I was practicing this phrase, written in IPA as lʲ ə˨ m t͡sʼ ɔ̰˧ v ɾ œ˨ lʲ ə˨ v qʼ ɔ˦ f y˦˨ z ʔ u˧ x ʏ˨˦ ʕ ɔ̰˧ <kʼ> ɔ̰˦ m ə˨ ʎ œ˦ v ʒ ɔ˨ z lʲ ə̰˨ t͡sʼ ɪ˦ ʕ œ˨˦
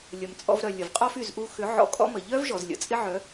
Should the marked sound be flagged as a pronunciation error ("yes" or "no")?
no